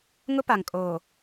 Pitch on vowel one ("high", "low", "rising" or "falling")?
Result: high